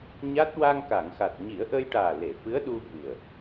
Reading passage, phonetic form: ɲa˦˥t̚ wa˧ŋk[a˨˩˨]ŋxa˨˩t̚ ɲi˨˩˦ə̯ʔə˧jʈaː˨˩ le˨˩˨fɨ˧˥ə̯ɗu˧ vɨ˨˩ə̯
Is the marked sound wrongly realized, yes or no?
no